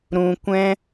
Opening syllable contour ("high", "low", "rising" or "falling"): low